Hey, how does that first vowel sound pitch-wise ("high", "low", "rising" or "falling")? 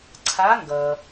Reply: rising